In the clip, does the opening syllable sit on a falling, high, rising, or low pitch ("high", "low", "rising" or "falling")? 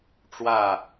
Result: falling